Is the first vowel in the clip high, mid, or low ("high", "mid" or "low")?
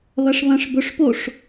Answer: low